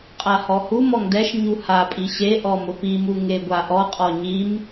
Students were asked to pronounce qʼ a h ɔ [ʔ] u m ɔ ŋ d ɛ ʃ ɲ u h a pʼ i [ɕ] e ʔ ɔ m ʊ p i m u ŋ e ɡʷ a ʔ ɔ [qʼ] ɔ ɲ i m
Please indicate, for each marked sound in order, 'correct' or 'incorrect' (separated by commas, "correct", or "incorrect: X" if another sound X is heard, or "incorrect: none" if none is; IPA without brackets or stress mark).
incorrect: h, correct, correct